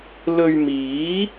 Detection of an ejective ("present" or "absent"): absent